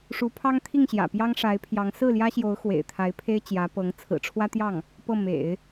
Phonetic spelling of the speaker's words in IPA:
ʂu˧˥pʰɑ˥ŋt̪ʰi˥˩ŋɕjä̰˨˩ pjɑ˥ŋʂa˧˥ɪ̯pʰjɑ˧˥ŋ sɹ̩˥˩ljä˥ɕjo˧˥ʊ̯ xwḛ˨˩ɪ̯t̪ʰa˧˥ɪ̯pʰe˥ɪ̯ t͡ɕjä˧˥pɤ˧˥ŋ t͡sʰɹ̩˨˩ʈ͡ʂʰwä˥t̪jɑ˥˩ŋ | pɤ˥˩mḛ˨˩˦ɪ̯

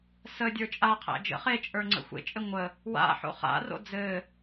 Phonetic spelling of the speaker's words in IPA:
sədʲə˞ t͡ʃʼaqʰæ̰ d͡ʒə̰ χet͡ʃʼə˞ŋ͡ǀə̰ xʷḛt͡ʃʼɘ ŋʷə | wa̰ħo̰ χa̰ro̰ d͡zɘ

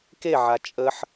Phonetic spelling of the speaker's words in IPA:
keʕa t͡ʃʼəħ

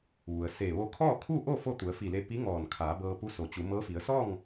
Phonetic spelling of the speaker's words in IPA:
ʋu˩ə̯se˧˩ ʋo˧kʰɔː˥˨kʰuː˥˨ʔo˥˨ fo˥˨t̪u˩˧ə̯fi˧˩le˧ pi˧˥ ŋɔː˧˩nkʰaː˩˧bɤː˧ pu˧˥ so˩t͡ɕu˩˧mɤː˧˥fi˩˧ə̯ sɔː˥˨ŋ

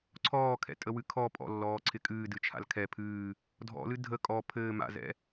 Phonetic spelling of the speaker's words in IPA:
ǀʰɔːkʰɛ̰ tʼəwɨkʰɔ pʼɔ̰lːɔː ǀʰɪkʼɨːdɨt͡ʃʰa̰l kʰɛ pʰɨː | dʱɔ̰lɨ dʱə kʼɔ pʰɘː ma̰zɛ̰

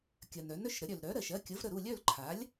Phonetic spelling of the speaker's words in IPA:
kʲɜ˩n œ˩˥nœ˩˧˩ʃɾə˩˥ ɾʲœ˩lɾœ˩˥ɾɜ˩ʃ ɜ˩˧˩kʲə˩˥v ɾə˩˧˩ɾu˥˨lʲœ˥˨l ǃʰa˩˥lʲ

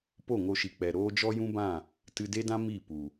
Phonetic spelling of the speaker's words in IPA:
po˦˨ŋo˧ʃi˨k͡pɛ˨ ɾoː˦ d͡ʒɔ˦jũ˦bã˦˨ | tɨ˧de˦dã˦ mi˦˨pu˨

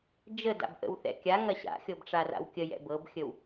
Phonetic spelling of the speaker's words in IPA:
d͡ʒəda̰bʔə̰wθɛ̰ kʲaŋɐ ɕa̰xʲɤbʈ͡ʂara̰w kʲəjɛ̰ bɤbxʲəw

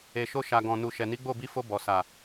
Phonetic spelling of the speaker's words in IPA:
e˨ʃo˧ʃa˨ɡɔ̃˨ nu˨ʃɛ˨ ni˨˦ɡ͡bo˦˨bi˧fo˧ bɔ˨ sa˨

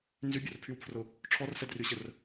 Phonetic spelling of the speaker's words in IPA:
nzybʲorpʰywpʰrʊ | ʈ͡ʂʰɔrsɛdryɕər

